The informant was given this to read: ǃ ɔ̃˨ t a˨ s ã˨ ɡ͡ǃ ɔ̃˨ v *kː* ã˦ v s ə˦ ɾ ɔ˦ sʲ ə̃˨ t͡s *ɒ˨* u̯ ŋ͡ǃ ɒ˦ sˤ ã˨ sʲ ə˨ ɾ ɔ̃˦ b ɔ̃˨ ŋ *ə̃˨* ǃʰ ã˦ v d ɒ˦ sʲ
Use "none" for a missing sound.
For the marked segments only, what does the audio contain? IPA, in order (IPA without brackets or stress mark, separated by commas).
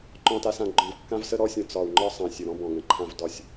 kː, ɒ˨, ə̃˨